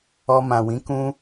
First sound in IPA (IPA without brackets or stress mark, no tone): ɔ